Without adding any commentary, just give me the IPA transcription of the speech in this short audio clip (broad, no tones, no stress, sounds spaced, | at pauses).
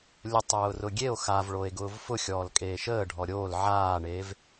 lʲ ʊ tˤ ʊː r ʊ ɡʲ e o̯ x a v ɭ o e̯ ɡ ʊː v f ʊ xʲ ɔː l kʼ eː ʃ əː ɖʱ ɔ ɾʲ oː l ʕ aː ɳ eː v